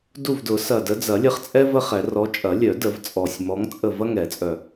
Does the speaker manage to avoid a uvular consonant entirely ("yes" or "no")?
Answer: no